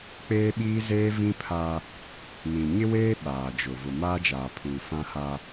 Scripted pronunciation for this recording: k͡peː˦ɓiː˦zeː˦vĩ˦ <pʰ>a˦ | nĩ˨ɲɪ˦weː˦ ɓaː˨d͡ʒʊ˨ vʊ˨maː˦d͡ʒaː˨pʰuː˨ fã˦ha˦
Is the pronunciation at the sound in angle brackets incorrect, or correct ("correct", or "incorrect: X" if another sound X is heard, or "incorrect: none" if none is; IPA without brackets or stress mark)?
correct